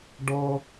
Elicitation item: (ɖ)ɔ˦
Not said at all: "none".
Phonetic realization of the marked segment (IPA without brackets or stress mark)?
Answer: ɖ